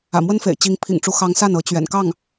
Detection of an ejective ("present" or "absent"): absent